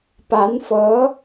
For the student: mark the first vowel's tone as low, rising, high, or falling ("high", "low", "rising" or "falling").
rising